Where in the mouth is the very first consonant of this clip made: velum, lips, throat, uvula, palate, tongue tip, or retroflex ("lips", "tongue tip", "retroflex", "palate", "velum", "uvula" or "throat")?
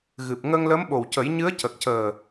velum